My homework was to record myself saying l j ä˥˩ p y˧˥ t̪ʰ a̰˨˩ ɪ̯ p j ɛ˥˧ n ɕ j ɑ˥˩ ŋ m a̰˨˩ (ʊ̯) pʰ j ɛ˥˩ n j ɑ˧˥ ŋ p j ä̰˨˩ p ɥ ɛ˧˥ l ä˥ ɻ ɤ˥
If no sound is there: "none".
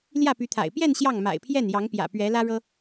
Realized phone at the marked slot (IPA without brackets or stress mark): ɪ̯